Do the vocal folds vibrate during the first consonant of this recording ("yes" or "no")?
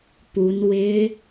no